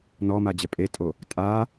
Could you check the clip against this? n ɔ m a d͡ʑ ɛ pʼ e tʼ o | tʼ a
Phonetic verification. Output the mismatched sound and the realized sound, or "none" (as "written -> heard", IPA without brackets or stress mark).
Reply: none